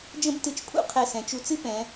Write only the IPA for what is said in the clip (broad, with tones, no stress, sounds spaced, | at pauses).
d͡ʒ ə̃˥ b t ɨ˧ t͡ʃ pʰ ṵ˥ qʰ ɛ˧˩ s ɛ̃˩˧ t͡ʃ u˧ t͡s ɨ˥ p ɛ̃˩˧